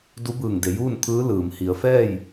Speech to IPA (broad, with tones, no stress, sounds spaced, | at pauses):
d u˧˥ b ɯː˧˩ ŋ d e˩˧ j uː˥˨ n t̪ʰ ɯː˧˥ l ɯː˩ m h i˩˧ ə̯ f ɛː˥˨ j